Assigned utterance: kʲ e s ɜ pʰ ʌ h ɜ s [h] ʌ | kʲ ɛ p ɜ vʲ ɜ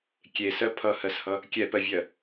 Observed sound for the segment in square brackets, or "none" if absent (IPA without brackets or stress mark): h